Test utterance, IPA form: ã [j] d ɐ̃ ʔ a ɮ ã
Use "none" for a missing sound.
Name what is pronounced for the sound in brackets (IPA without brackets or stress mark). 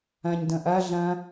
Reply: ɲ